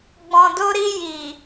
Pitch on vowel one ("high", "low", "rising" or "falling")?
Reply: low